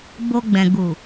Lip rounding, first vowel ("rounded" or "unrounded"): rounded